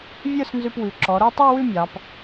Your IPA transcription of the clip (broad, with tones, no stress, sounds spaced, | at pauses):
vʲ ə˞˥˧ s n z ʉ˧ p w ʉ˩˧ ǁ ɔ˩˧ ɾ o˥˧ tˤ ə˞˥˧ w ʉ˥˧ mʲ ɑ˩˧ p